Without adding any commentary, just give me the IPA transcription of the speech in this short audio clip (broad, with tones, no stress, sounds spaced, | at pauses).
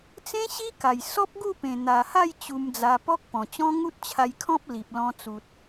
t͡s ẽ˦ ɕ i˦ k a˨˩ j s ɔ˦ p̚ ɡ u˥˧ p ẽ˨˩ n̪ a˨˩ h a˥˧ j t͡ɕ u˧ m d͡z a˧ p ɔ˦ k̚ p ɔ̃˨˩ t͡ɕ ɔ̃˦ ŋ u˦ t̚ t͡ɕʰ a˧ j kʰ ɔ̃˦ p̚ l i˨ p̚ l ɔ̃˧ t͡s u˨ t̚